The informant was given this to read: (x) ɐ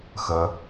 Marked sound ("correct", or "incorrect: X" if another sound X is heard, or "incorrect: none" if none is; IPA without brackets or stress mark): correct